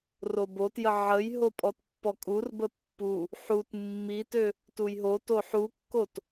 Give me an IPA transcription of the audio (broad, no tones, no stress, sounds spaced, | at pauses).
r o b o t j ə ʕ ə j ɦ o pʼ ɔ t pː ɔ kʼ u r b ə pː u | ħ u t mː i t ø | t u j ɦ o t o ħ u kː o t